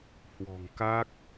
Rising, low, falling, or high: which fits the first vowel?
low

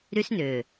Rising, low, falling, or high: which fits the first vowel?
high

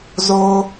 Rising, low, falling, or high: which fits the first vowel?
high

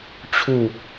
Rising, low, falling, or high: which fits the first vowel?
low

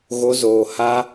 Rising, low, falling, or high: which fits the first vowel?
high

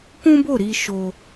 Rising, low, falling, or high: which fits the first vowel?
high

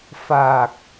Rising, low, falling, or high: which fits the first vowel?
low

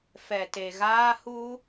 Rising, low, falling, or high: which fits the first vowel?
low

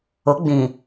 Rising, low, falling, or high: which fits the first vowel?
rising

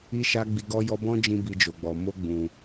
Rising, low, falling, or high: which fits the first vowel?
high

